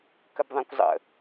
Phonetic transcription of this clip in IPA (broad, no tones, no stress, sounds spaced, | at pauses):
k ə b ðˤ ã kʷ zˤ ə̰